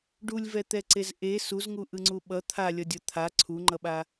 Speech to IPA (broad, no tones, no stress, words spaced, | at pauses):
ɖulʲvɛt̪ɛǀez ʔe suzŋuʔɯŋ͡ǀu ɓʌ t̪ʰalʲʌdʲʌ t̪ʰa ǀʰuŋ͡ǃʌɓa